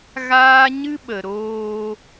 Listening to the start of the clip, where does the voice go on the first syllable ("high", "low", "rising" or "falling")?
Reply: high